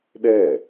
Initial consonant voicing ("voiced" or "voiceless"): voiced